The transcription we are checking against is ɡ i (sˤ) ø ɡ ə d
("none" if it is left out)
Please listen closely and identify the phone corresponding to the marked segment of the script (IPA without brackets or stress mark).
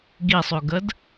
sˤ